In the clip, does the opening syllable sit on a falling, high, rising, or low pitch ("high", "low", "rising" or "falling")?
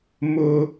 high